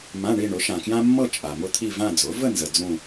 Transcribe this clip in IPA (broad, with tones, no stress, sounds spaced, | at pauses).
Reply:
m ã˧˥˧ ɳ i˥˧ ɳ ʊ˩˥ ʃ ã˨ k j ã˥ mː ɤ˥˧ t͡ʃʼ a˨ m ʊ˥˧ t̪ʰ i˥˧ v ã˥˧ d͡z ʊ˩˥ v ə˥˧ n z ə˨ d͡z ũ˥˧